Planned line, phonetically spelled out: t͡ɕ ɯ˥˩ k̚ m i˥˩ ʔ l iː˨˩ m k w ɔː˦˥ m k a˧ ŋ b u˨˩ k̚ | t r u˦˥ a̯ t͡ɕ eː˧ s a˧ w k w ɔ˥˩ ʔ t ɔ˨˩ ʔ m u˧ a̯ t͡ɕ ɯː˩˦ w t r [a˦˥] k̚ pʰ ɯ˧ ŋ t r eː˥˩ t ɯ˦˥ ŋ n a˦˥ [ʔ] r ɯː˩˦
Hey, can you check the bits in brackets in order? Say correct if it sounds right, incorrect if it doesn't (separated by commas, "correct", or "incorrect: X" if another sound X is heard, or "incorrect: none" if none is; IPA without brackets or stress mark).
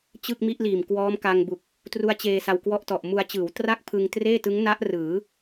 incorrect: a˥˩, correct